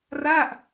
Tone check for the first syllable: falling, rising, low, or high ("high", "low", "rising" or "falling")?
falling